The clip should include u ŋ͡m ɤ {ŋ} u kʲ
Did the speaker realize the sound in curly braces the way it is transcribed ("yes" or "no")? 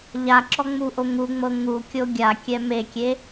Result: yes